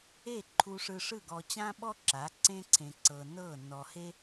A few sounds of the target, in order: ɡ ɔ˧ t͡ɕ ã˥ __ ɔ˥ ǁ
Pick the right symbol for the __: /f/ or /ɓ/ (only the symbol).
ɓ